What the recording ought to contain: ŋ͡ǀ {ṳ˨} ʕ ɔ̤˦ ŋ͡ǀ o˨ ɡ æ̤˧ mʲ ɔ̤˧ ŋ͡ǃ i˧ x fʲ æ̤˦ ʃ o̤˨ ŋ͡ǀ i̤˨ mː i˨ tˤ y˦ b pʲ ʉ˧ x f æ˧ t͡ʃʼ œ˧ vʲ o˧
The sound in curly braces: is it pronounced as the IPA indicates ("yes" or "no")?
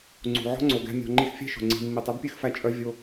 yes